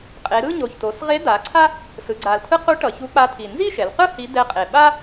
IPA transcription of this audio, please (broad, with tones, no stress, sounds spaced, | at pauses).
qʼ e˩˧ ɾ ɯ˥˧ ɲ o˨˩ ç t o˩˧ s ʁ e˧˥ d̪ a˩˧ ǀʰ a˥ | s ɯ˩˧ ɡ͡ǀ a˨˩ l t̪ʰ ɯ˥ q u˧˥ ʈ ʌ˩˧ ç u˧˥ k͡p a˧˥ t̪ʰ i˨˩ n z i˥˧ ʃ ɛ˩˧ l q ɯ˥˧ h i˧˥ d̪ ɛ˧˥ qʼ e˨˩ ɓ a˥